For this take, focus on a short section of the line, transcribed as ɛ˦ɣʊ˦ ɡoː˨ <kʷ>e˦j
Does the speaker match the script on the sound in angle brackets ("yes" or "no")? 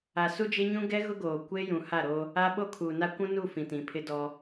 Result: yes